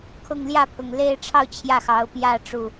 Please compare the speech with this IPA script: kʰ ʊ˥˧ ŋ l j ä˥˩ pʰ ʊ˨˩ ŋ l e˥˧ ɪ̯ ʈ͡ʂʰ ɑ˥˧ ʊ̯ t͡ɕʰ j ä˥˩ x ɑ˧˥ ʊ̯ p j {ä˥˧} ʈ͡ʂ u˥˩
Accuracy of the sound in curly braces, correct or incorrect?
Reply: correct